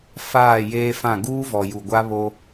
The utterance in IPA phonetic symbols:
f aː˦˨ j eː˦ f ã˦˨ ɡ uː˦ v ɔ˨ j u˨ ɡʷ a˦ β o˦

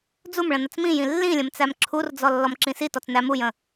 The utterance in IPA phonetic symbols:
d͡z u m ɭ ə̃ n ə t͡s m ĩ j ĩ lː ĩ lʲ ə̃ m t͡s æ m ǁʰ u r d͡z ɔ lː ɔ m ǁ ĩ s i t ɔ t͡s n æ m u j ə̃

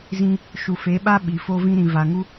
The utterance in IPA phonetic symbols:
z ĩ˦ | ʃ u˨ f e˨˦ ɓ a˦ ɓ i˨ f o˦ v ĩ˦ ɾ ĩ˨ v a˨ ŋ u˦

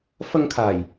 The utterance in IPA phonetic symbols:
f ɐ˧ ŋ kʰ aː˨˩ j

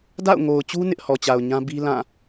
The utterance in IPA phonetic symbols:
d a̰˦˨ ʊ̯ ŋ o˨ ʊ̯ t͡ɕ u˦ n ɪ˦ ʔ h ɔ˨ t͡ɕ a˨ ʊ̯ ɲ ã˦ b i˦ l ã˦˨

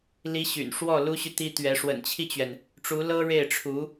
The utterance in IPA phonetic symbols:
l i˧˥ ɕ y̰˨˩ n ʂ w ɔ˥˩ l u˥ ɕ y˨ t̪ i˥ t̪ ɥ ɛ˧˥ ʂ w ə̰˨˩ n t͡ɕʰ i˥˩ t͡ɕ ɥ ɛ˩ n | ʈ͡ʂ u˧˥ l ɤ˥ ɻ e˥˩ ɪ̯ ʈ͡ʂʰ u˧˥

